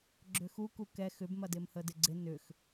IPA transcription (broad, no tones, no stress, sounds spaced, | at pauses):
ɡ͡ǁ ʏ x u k u k ɛ x ʏ b m ɐ d ɪ m h ə d ɪ ɡ͡ǀ ɪ n ʏ x